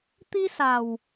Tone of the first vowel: high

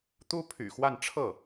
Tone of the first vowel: high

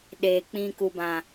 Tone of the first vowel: low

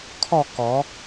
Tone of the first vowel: falling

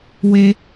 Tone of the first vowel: high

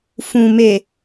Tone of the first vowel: low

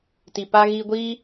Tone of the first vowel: low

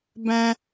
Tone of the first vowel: high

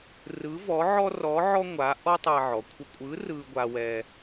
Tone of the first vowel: rising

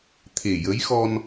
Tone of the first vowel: low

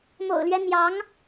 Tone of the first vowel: low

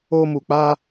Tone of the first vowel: high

